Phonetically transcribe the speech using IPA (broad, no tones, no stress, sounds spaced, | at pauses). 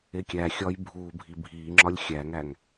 e kʲ æ xʲ ɒː j bʱ uː bʱ i bʱ iː ŋ͡ǁ ɒ lʲ xʲ æ ŋ æ ŋ